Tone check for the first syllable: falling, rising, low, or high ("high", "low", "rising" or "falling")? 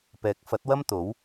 rising